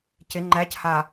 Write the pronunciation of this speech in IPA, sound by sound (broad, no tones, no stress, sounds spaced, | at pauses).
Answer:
c ɪ ŋ͡ǃ æ c h a